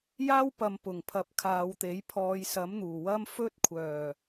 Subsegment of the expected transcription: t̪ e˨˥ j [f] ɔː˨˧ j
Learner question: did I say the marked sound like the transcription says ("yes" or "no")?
no